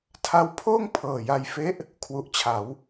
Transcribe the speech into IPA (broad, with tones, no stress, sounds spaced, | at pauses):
tʰ a˧ w pʰ oː˥˩ ŋ pʰ ɤː˨˩ j a˧ j f e˦˥ ʔ | kʰ w u˨˩ ʔ t͡ɕʰ a˩˦ w